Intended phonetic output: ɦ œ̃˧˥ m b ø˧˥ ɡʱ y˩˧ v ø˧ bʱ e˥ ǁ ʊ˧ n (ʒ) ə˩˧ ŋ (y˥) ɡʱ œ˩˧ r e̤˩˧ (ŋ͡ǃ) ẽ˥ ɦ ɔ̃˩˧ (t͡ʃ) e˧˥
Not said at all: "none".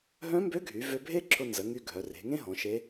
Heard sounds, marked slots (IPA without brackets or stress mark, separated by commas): z, y˧, ŋ, ʃ